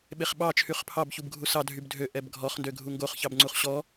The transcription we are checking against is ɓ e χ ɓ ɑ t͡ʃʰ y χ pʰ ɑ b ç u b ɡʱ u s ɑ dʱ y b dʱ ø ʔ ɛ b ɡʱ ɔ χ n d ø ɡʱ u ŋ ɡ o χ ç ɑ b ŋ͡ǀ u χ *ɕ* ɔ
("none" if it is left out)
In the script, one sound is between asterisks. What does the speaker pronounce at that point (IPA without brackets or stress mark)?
ɕ